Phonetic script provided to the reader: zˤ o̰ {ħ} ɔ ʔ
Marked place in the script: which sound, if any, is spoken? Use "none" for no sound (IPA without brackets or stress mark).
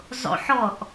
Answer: ħ